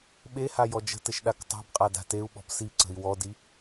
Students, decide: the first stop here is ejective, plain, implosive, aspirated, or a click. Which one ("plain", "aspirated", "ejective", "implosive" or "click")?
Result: implosive